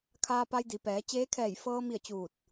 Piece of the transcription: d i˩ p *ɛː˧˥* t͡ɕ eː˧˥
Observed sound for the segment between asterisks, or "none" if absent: ɛː˩˧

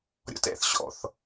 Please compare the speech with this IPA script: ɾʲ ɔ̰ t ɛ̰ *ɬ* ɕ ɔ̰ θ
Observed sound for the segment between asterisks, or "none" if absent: θ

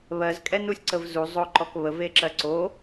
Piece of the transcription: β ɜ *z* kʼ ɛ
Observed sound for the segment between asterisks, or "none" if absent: z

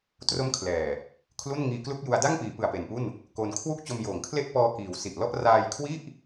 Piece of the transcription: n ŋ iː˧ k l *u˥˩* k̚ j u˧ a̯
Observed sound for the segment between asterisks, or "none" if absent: u˥˩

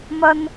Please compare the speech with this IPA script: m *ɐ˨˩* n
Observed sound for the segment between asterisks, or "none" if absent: ɐ˥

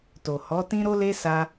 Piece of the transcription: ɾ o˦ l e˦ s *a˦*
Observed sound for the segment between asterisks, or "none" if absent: a˦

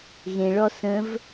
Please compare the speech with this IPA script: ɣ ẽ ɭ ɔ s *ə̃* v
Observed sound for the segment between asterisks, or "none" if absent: ə̃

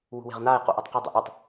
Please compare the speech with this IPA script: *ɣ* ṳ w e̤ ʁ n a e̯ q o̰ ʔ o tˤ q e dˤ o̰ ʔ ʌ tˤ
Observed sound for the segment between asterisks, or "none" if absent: w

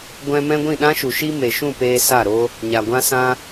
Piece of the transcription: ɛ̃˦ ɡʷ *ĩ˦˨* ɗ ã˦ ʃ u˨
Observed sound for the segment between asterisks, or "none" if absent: ĩ˦˨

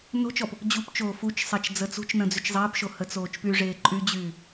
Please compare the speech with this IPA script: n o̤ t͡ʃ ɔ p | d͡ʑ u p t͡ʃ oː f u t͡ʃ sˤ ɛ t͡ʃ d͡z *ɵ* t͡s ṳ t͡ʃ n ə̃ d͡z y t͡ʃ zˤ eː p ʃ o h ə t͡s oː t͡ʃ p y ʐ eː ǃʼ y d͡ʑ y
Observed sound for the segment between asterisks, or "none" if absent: ə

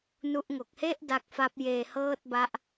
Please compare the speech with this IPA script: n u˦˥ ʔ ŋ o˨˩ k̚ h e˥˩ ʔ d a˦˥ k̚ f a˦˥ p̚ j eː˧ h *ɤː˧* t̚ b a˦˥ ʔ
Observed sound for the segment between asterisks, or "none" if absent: ɤː˥˩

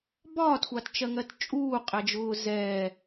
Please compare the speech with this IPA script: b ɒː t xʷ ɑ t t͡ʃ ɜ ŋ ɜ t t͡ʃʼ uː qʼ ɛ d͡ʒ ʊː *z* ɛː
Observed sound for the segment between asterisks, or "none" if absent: z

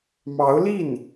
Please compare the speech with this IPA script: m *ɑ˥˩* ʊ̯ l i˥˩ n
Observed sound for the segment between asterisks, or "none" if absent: ɑ˧˥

